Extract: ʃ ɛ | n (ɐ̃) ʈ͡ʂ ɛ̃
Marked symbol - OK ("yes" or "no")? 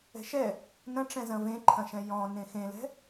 yes